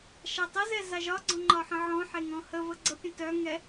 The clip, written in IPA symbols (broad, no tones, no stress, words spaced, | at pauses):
ʃatˤəzɛ zaʒɒɡ͡ǀɔ̃ ŋ͡ǃɒħə̃ʕɔ̃ħe ŋɔ̃həvə ɡ͡ǀəpʲə̃ tœŋɛ